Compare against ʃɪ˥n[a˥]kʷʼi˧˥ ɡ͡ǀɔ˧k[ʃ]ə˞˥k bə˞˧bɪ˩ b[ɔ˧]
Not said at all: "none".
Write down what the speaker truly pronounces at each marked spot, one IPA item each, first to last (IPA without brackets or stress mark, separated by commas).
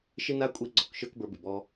a˥, ʃ, ɔ˧